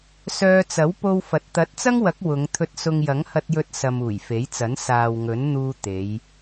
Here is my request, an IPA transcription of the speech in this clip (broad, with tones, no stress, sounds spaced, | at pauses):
s œː˧ t͡s ɐ˨˥ w p o˧ w f ɐ˨ t̚ t̪ ɐ˨˥ t̚ t͡s ɐ˥ ŋ w ɐ˨˥ k̚ w ʊ˨˧ ŋ t̪ʰ ɵ˧ t̚ s ʊ˧ ŋ j ɐ˨˥ ŋ h ɐ˧ t̚ j ɵ˧ t̚ s ɐ˨ m uː˨˩ j f e˨˥ j t͡s ɐ˨˥ n s aː˨ w ŋ ɵ˨˥ n n̪ uː˧ t̪ e˨˧ j